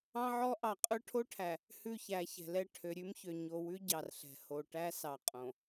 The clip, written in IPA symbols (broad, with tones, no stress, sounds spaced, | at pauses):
ɑ̃˦ ʕ ɔ˦ ʔ ɑ˨ qʼ ɵ˦ ʈʰ o˦ ʈʰ æ˨ | h ʉ˦˨ ç æ˨˦ ç ɛ̤˨ l ɛ˦ ʈʰ ø˨ ɾʲ ʉ˦ m ç ø˨ ɲ o˨ w ʉ˦ ɟ ɑ˨ r ɬ ɛ̤˨ h o˨ ʈ æ˦ s ɑ˨ qʼ õ˨